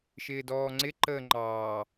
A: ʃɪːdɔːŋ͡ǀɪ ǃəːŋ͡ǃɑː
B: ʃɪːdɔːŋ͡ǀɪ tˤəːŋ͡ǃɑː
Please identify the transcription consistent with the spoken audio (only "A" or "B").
A